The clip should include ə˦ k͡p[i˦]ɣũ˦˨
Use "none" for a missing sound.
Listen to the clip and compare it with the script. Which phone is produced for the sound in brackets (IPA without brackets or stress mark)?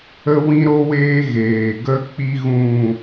i˦